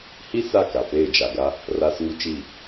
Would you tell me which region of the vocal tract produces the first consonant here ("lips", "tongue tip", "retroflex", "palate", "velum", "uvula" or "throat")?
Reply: throat